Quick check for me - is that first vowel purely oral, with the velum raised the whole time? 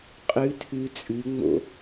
yes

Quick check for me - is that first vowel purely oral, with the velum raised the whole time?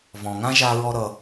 no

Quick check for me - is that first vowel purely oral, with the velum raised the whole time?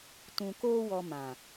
no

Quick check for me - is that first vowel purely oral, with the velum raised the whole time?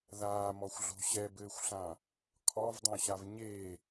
yes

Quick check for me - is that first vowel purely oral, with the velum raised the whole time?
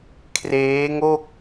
yes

